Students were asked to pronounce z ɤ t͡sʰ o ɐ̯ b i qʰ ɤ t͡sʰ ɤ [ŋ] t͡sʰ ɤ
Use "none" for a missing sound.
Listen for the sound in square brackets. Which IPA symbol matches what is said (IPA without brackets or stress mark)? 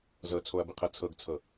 ɡ